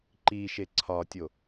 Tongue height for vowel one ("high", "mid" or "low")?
high